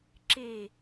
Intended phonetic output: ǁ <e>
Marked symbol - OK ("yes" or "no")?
yes